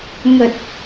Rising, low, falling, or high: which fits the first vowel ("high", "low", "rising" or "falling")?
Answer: low